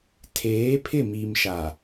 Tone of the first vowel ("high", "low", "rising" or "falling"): rising